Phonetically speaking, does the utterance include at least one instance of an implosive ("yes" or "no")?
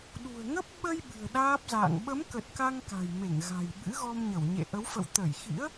yes